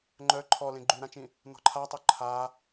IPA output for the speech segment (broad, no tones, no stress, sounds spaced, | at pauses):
ŋ͡ǃ œ ǃʰ ɔ l ẽ ɡ͡ǃ y ɾ ã t͡ʃ ĩ | n ɔ̤ ǃʰ a tˤ o ǃʰ a